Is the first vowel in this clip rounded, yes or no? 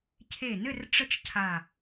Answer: no